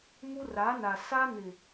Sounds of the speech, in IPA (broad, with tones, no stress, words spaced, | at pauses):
mu˦ra˨˦na˨ sa˦nɪ˨